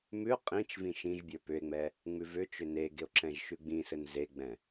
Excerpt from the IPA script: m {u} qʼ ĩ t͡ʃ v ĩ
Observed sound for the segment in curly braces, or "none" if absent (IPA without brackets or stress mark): ʉ